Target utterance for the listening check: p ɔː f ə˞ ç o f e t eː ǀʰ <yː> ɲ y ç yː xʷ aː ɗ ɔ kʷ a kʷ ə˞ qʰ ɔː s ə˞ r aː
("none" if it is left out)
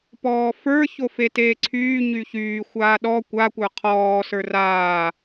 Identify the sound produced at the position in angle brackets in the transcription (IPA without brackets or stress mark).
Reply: yː